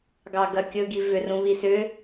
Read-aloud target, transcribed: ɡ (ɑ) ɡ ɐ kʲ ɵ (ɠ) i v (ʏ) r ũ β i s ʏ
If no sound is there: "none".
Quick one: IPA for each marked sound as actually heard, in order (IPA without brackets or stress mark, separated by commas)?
ɑ, ɡ, ʏ